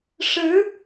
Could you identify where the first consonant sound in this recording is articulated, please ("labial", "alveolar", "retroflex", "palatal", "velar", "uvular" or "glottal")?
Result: retroflex